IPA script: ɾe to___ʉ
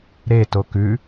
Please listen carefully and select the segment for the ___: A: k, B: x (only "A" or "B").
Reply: A